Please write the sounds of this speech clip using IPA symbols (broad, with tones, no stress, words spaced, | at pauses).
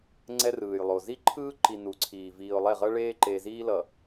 ŋ͡ǀɛ˦rɯː˨jlˠo˨ zi˦ǃʰɯː˦ ǃi˨ nu˨˦ǀʰiː˨ viː˨ʊ̯lˠɛ˦˨ʁʌ˦ ɭeː˦ǃe˨ziː˦ lʌ˨